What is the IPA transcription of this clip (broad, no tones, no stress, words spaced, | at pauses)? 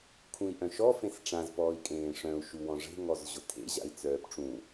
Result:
kʰũi̯ʔœ̃ʃɔ fẽsʈ͡ʂãz pɔːi̯kʼẽːʂœ̃u̯ ʃuwɔ̃ʐe̤ ŋɔzʑʊtʰḛ ʑa̰i̯t͡sœːpʈ͡ʂũ